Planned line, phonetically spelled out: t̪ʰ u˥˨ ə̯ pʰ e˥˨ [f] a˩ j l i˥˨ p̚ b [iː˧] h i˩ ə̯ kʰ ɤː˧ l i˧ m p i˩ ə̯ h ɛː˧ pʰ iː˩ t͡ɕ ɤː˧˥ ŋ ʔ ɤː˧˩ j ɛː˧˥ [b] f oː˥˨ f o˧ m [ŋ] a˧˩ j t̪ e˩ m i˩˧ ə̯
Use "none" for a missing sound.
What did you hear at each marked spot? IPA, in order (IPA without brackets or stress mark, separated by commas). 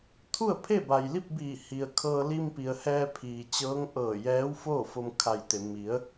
b, iː˧˩, w, kʰ